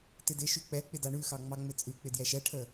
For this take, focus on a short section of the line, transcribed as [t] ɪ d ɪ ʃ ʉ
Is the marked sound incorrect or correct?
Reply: correct